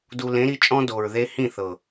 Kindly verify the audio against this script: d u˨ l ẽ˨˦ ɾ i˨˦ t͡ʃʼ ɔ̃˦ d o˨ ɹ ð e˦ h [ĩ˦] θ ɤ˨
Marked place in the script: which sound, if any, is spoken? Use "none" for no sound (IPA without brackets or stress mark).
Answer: ĩ˦˨